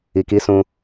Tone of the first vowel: low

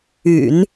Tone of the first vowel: low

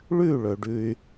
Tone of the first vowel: falling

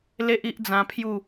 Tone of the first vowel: high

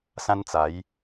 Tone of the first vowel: high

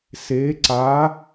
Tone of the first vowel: rising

